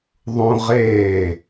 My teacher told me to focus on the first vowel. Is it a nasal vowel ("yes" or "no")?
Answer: yes